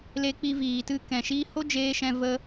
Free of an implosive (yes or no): yes